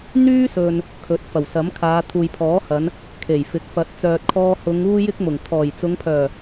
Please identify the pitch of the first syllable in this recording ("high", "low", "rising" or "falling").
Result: high